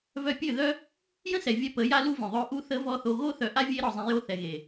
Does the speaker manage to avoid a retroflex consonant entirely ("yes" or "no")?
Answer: yes